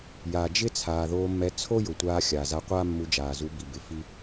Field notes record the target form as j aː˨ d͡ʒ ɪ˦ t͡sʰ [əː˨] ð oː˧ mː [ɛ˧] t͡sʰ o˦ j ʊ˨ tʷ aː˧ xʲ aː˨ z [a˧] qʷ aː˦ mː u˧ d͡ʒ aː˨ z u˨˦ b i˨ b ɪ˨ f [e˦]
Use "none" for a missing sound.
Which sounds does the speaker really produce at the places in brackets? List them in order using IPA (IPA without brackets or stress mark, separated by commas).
aː˨, ɛ˧, a˧, i˦